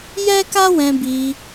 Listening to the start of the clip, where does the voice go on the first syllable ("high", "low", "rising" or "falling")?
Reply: high